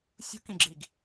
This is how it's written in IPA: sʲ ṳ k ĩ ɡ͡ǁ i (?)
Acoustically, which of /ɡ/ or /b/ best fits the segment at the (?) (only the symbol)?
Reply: ɡ